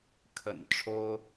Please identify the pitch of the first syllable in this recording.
low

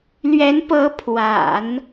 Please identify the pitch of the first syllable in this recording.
rising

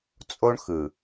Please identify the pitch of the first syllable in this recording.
high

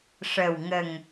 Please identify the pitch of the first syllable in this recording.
low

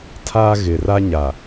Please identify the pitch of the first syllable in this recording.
high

